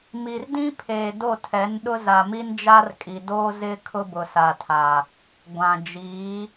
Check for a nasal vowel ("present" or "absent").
present